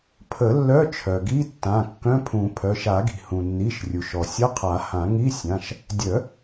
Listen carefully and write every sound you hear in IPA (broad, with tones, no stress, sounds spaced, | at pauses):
pʰ ə˨˩˦ lː œ˧˥˧ t͡ʃʰ œ˩ ɡ i˧˥˧ tː ã˩˧˩ kː œ̃˧˥˧ pʰ ũ˨˩˦ pʰ œ˩˧˩ ʃ a˨˩˦ ɡ i̤˩ h ũ˩ nː i˩˧˩ ʃ rʲ u˩ ʃ ɔ˩ sʲ ʌ˧˥˧ qʰ a˨˩˦ h ã˨˩˦ ŋ i˧˥˧ sʲ ã˩˧˩ ʃ | dʲ œ˨˩˦